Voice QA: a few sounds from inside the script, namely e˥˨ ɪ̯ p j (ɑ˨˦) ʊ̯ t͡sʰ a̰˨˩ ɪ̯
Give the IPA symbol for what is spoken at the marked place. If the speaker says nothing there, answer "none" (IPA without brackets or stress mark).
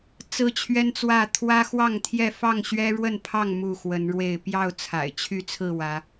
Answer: ɑ˥˨